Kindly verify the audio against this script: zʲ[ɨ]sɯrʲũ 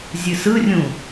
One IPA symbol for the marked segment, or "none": ɨ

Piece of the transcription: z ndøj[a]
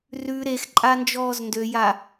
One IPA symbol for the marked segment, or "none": a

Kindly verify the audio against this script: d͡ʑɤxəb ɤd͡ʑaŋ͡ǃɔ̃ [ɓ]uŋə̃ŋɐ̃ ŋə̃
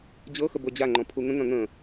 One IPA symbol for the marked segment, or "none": pʰ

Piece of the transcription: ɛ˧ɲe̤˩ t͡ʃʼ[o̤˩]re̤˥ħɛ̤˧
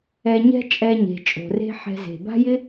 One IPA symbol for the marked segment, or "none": o̤˩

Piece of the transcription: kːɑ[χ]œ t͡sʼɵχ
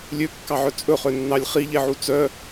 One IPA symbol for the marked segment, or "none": ʕ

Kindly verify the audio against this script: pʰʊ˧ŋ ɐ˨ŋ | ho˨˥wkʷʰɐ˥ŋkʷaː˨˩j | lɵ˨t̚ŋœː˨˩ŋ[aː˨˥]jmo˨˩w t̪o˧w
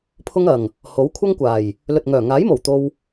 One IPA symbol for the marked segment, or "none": aː˨˥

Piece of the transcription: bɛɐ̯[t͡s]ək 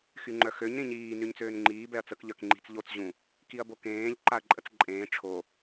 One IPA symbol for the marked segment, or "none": t͡s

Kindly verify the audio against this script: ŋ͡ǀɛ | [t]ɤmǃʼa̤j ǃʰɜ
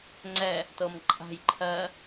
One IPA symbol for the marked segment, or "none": t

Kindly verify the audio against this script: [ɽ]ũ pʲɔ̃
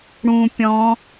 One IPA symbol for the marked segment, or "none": ɽ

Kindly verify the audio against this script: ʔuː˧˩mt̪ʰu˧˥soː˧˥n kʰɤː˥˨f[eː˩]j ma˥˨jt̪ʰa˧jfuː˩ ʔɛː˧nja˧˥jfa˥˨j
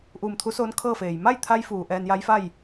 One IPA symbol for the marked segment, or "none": eː˩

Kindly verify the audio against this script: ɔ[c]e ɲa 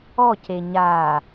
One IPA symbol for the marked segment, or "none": c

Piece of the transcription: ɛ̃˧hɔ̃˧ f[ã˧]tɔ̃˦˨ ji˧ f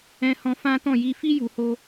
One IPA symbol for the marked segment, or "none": ã˦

